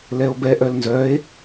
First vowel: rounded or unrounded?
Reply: unrounded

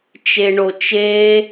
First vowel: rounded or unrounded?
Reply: unrounded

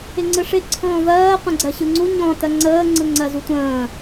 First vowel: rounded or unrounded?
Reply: unrounded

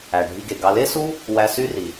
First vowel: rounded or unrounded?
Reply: unrounded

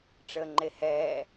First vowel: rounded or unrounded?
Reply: unrounded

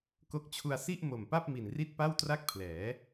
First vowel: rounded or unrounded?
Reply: rounded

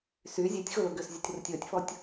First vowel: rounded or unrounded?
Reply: rounded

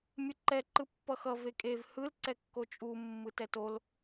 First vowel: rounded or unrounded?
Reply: unrounded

